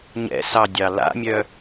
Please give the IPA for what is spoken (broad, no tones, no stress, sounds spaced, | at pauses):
ɲ ɛ̰ s ɑ dʲ ɑ l a̰ mʲ œ